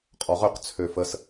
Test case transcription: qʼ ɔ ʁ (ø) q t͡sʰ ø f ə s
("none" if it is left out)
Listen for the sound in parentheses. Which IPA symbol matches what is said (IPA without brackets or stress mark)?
ø